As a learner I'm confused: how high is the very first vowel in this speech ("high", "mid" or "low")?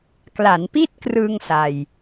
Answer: low